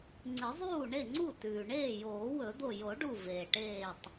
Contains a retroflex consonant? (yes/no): yes